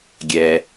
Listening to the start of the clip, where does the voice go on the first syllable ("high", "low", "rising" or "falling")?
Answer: low